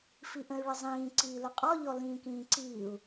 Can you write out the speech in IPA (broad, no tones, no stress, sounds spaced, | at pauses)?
f i ʔ ə̃ y̯ ɭ ə zˤ ĩː ǀ iː l ʊ qʼ ɔ ʎ ɔ l ĩː k ĩː ǀ iː u̯